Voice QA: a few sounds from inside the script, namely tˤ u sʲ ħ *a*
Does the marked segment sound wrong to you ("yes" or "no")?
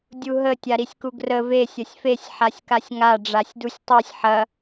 yes